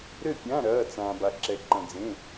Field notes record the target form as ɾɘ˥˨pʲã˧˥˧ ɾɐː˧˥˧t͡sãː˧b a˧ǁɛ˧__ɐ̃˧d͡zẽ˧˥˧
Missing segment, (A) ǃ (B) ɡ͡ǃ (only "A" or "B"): A